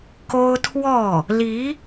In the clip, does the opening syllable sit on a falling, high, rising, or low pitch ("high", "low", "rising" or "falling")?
high